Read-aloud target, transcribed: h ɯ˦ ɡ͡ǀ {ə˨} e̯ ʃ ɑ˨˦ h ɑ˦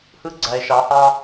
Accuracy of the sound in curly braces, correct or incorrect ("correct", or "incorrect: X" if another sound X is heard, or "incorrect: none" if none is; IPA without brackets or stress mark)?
incorrect: æ˨